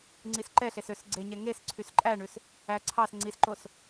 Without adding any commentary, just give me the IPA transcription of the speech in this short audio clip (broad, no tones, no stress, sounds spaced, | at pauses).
ŋ͡ǀ i s ǃ ɛ ɬ e s ø s ɡ͡ǀ e ɲ ɛ ŋ e s ǀʰ y s ǃʼ æ ɳ ʉ s | æ ǀʰ ɑ s ŋ͡ǀ i s ǃ o s